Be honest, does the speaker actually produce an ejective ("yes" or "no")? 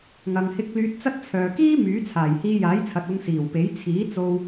no